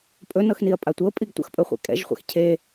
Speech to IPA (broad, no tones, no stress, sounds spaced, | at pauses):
pʼ ɵ n ɤ x n i ɐ̯ pʼ a tʷ ɤ pʼ i ɡ tʷ ə̰ x pʼ ɵ χʷ ɛ̰ kʼ ɛ̰ ʒ χʷ ɛ̰ x cʰ e